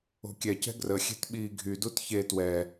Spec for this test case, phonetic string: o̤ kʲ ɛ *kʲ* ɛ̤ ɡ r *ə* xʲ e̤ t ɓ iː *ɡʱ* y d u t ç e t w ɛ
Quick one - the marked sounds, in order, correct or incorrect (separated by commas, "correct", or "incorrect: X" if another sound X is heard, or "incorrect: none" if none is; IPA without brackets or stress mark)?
incorrect: c, correct, correct